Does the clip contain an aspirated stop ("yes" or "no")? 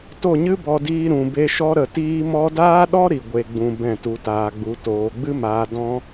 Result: no